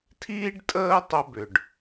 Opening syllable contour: high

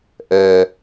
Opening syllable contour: low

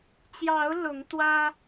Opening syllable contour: rising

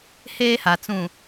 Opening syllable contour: high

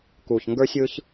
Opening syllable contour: low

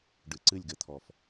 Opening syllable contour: low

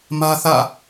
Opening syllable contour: high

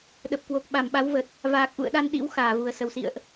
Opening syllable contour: low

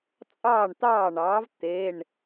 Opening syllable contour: falling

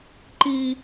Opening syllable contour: low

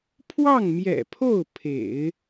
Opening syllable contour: falling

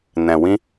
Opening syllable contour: low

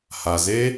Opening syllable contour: low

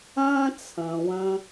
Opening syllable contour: high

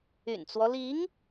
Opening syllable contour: low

